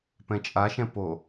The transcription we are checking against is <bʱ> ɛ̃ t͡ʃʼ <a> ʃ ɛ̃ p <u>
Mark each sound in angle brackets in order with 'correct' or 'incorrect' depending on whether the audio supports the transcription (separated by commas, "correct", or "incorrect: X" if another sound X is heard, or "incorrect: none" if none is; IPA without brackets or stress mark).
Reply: incorrect: p, correct, incorrect: o